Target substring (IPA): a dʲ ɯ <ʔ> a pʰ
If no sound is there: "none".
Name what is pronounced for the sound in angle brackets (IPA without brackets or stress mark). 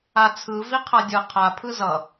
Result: qʰ